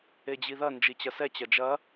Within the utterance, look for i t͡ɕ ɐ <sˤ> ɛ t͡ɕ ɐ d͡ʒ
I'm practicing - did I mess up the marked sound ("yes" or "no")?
yes